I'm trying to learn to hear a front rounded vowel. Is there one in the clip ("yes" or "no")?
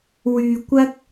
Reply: yes